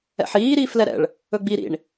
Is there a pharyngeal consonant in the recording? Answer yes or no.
yes